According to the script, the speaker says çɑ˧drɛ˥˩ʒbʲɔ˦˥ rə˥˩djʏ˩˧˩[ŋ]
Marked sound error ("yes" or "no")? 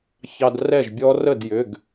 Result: yes